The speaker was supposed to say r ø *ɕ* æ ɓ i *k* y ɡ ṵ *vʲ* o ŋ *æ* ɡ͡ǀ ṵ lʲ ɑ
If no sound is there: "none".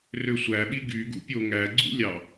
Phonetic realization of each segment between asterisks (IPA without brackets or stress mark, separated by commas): sʷ, ɡ, pʲ, æ